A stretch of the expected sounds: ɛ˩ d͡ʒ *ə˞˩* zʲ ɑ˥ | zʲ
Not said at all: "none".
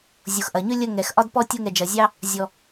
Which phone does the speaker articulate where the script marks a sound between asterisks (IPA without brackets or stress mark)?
ɐ˩